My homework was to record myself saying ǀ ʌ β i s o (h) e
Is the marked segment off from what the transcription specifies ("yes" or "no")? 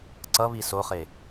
yes